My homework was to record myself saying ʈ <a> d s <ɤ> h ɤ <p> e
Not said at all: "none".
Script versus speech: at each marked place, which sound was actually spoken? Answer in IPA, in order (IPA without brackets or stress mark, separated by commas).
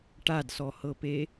a, ɔ, p